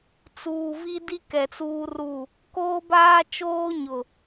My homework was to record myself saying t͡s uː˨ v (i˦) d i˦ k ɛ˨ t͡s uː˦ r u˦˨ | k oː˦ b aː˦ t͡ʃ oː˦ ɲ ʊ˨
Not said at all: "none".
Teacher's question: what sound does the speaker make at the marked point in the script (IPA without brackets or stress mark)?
i˦